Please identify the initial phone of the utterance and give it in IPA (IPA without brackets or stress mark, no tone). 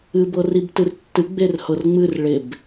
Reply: ɨ